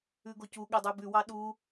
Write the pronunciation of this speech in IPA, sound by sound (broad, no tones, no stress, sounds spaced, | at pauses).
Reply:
ʉ ɡ o c u ɠ ɛ dˤ ʉ b ʉ w ɑ ɗ u